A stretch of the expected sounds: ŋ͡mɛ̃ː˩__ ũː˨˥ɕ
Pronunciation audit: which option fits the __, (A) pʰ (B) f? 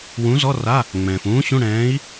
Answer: B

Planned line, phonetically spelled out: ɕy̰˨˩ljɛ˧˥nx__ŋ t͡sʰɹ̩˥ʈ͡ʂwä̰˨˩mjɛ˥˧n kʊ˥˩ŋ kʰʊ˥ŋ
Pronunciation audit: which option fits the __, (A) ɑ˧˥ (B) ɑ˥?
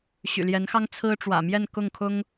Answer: B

